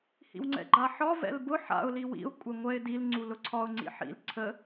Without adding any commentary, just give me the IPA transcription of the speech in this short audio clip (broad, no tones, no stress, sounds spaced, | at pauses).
h ḭ w ŋ͡ǀ ɛ̰ ɡ͡ǃ a ħ ɒ v ɛ̰ l b ʊ ħ a̰ ʊ̯ l i w ḭ ʊ̯ kʷʼ ɛ ŋʷ ɛ ɪ̯ d i l ŋ͡ǀ u l ʊ ǀʰ ɒ ʊ̯ ŋ͡ǀ ḭ ħ ḭ l ǀʰ ə